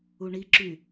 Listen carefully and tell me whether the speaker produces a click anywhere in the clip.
yes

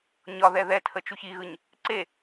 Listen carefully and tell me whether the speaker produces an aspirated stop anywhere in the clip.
yes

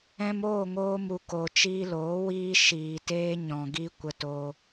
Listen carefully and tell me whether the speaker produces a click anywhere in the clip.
no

